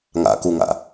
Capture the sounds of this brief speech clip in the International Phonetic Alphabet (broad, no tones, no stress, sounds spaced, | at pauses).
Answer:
ŋ a̰ k u ŋ a̰